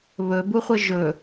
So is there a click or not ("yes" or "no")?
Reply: no